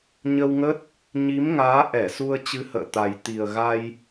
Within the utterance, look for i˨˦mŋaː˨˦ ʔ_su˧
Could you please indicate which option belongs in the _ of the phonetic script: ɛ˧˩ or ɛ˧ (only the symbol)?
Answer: ɛ˧˩